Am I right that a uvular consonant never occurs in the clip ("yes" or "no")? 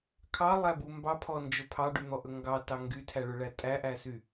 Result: yes